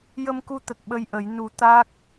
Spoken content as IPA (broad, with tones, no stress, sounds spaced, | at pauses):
j ə˧ m k u˧ t̪ ə˨˩ k̚ ɓ ə˧ j ʔ ə˨˩˦ j n u˨˩˦ t̪ a˦˥ k̚